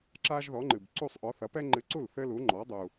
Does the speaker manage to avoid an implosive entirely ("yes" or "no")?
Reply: yes